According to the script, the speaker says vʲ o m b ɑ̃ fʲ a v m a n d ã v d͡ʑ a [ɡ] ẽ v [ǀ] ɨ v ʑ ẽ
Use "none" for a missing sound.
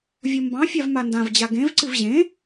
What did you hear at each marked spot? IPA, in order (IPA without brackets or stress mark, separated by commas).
ɡ, ǀ